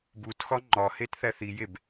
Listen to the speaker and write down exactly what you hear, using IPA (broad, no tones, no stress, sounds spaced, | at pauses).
b u t x ɒ ŋ͡ǃ ɒ h e t θ æ θ i j e b